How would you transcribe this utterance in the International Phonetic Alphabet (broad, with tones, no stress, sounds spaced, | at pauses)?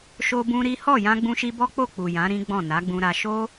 ʃ o˧ b ũ˧ ɾ i˦ h ɔ˦˨ j ã˧ ɡ͡b ũ˧ ʃ i˧ b ɔ˦ k͡p o˦˨ k͡p u˨ j ã˨˦ ɾ ĩ˦ ɡ͡b ɔ̃˦˨ n a˨˦ ɡ͡b ũ˧ ɾ a˧ ʃ o˦